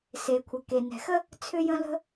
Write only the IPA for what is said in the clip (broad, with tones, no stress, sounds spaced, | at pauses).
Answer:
s e˩ kʷʰ ə˩ k e˩ n ɛ̤˩ x ə˥ | t͡sʰ ʏ˥ j ə̃˥ l ə̤˥